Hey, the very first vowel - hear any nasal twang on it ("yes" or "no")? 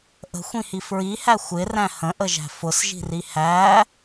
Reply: no